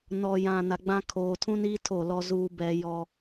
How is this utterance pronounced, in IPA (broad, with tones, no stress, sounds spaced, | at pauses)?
n ɔ˨ j ã˨ n a˨ ɡ͡b ã˦ kʰ oː˨ tʰ ũ˦ n iː˦ tʰ o˦˨ l ɔ˦ z uː˦ b ɛ˦ j ɔ˦